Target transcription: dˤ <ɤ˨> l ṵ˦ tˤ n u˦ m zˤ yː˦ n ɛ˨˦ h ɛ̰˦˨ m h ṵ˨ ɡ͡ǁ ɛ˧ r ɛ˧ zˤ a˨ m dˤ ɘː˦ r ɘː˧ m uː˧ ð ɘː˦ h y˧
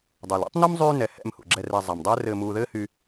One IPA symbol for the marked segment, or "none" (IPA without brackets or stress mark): ɤ˨